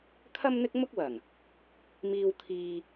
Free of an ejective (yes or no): yes